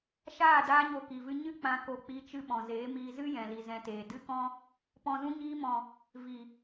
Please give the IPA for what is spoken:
ʃ aː˦˨ d aː˧ ɲ o˨ k i˨ v ɨ˧ ɲ ɨ˦ k͡p ã˧ k o˧ k͡p i˧ t͡ʃ ɨ˧ ɓ ɔ̃˨ z eː˨˦ m iː˧ z ɨ˦ j ɛ̃˨ l i˨ z ɛ̃˧ t eː˨ d ɨ˦ k ɔ̃˦ | p ɔ̃˨ z ũ˧ ɲ iː˧ m ɔ̃˨ | v i˨

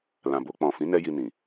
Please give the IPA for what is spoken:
l ã˨ b o˧ k͡p ɔ̃˨ f ĩ˨˦ n ɛ˧ j i˧ n ĩ˨

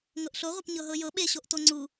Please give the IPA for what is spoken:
ŋ ɤ ʔ ɬ o ʁʷ ʌ p ɲ ɤ ɦ ɤ j ɤ ɓ e ɕ o ʔ t o ŋ͡ǀ u

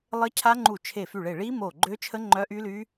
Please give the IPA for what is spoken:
lˠ ə˦˥ cʰ a˦˥ ŋ͡ǃ u˧˩ t͡ʃʰ e˧˩ f y˧˩ ɭ e˧˩ ɭ i˦˥ m o˧˩ ɡ͡ǃ ø˦˥ t͡ʃʰ ə˦˥ ŋ͡ǃ œ˦˥ ʔ y˦˥ l y˦˥

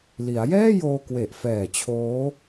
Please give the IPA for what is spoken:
l i˩˦ a̯ j ɛː˥˩ j oː˧ k w e˨˩ ʔ f ɛː˨˩ t͡ɕʰ oː˦˥

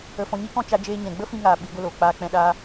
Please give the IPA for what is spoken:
ə˧ f ɔ̃˧ ɲ i˦ k ɔ̃˦ t͡ʃ a˧ d͡ʒ eː˧ ɲ ɛ̃˨ ɡ͡b ə˦ f ĩ˧ ŋ aː˨ ɓ i˨˦ ɡʷ ə˧ l oː˨ k͡p aː˧ k͡p ɛ̃˧ ɗ aː˦

